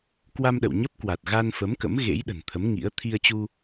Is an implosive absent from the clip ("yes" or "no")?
no